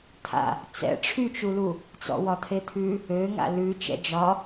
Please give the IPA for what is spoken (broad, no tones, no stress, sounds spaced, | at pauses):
t̪ʰ a̰ | t͡s ɛ̰ ʈ͡ʂʰ y t͡ʃ u l u | t͡s ɔ̰ w ɒ t̪ʰ e t̪ʰ ʉ | ø ŋ a̰ l ʉ t͡ʃ ɛ̰ d͡ʒ ɒ